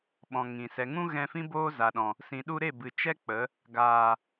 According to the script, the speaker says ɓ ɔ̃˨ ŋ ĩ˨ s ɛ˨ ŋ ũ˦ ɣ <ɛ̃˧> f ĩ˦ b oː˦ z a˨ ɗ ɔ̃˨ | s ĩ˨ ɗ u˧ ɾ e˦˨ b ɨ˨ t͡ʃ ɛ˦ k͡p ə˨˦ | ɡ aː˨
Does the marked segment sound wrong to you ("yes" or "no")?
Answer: no